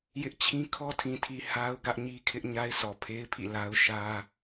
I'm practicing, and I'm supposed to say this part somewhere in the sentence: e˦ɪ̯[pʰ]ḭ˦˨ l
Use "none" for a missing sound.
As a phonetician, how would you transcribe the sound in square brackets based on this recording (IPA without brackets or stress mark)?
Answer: pʰ